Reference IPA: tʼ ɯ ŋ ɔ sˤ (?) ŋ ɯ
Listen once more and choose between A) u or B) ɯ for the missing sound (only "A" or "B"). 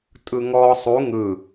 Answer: A